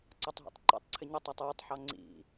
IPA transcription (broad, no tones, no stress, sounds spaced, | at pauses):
ǀ ɒ tˤ ɦ ḭ tˤ ǃ ḭ tˤ ǀʰ ɪ ɲ ʌ tˤ ɑ tˤ j ʊ tˤ ħ ɑ ŋ͡ǀ ḭ